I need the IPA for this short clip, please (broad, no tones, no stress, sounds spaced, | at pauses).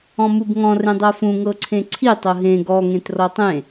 ɔ̃ m u b ŋ ɔ̃ r ẽ dˤ ɤ f ũ ŋ ɤ ǀʰ ẽ ǀʰ i tˤ ɤ ɦ ẽ ɡ ɔ ŋ ẽ t r ɔ tˤ ẽ